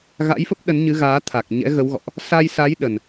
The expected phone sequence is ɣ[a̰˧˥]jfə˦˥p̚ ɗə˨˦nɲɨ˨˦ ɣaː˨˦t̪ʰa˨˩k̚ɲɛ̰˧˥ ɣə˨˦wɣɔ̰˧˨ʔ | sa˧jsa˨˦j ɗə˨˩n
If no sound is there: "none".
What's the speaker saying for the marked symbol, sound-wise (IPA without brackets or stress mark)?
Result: a̰˧˥